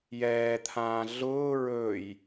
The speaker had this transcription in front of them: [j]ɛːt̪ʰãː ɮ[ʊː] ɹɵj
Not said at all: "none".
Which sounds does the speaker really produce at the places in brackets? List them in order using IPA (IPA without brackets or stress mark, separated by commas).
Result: j, ʊː